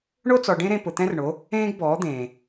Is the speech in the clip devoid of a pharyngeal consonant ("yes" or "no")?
yes